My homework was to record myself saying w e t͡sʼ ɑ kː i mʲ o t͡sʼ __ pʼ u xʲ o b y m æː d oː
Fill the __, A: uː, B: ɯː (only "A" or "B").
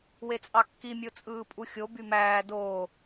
B